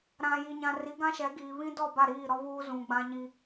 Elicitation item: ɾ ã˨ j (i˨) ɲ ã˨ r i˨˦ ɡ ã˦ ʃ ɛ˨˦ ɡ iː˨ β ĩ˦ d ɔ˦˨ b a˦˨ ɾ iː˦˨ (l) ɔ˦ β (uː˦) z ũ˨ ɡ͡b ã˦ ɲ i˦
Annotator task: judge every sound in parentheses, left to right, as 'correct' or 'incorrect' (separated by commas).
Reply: correct, incorrect, correct